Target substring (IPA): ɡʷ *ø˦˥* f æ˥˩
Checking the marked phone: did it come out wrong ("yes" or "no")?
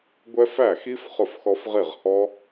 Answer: yes